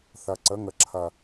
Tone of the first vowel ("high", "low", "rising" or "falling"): low